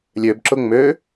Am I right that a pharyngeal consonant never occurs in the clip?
yes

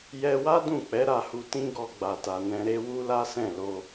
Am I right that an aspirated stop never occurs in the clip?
yes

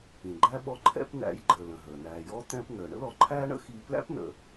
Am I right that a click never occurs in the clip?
no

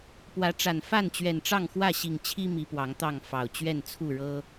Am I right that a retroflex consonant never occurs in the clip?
no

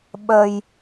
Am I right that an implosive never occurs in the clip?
no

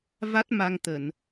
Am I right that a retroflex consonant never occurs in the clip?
yes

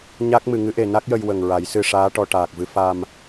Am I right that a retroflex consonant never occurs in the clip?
no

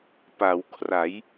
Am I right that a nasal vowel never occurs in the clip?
yes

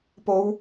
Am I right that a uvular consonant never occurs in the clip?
yes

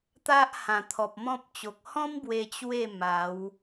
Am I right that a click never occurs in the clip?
yes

